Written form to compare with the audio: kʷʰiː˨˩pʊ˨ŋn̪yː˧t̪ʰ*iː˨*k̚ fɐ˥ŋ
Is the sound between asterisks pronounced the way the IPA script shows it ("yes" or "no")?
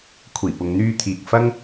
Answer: yes